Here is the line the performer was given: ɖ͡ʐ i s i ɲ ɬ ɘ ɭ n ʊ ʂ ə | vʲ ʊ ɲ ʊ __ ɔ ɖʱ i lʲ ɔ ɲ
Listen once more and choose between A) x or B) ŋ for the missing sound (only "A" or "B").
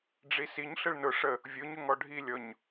B